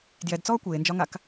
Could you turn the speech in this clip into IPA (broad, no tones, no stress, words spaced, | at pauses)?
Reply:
djɛdt͡sɔː kʷeːnd͡ʒɒŋak